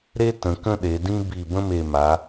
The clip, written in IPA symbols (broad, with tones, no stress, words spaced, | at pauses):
ɾe˥ tə̃˩˧kə̃˥˧ɗe˩˧dĩ˥ bi˧˩bə̃˥me˧˩ma˩˧